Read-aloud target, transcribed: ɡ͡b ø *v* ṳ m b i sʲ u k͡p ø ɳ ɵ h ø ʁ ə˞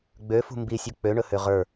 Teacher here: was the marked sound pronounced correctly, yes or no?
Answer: no